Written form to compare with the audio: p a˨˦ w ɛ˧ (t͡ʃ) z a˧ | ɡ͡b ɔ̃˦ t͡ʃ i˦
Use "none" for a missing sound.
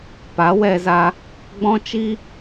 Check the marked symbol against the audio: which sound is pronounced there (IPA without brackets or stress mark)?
none